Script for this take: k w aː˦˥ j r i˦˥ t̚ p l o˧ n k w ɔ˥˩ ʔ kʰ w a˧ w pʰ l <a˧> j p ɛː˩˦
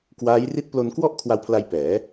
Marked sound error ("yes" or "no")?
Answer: no